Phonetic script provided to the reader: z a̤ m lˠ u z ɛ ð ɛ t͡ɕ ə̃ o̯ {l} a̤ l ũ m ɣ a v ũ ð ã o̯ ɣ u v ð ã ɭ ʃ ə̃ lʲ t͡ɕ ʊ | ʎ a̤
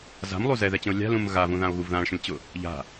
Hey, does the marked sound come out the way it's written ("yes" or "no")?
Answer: no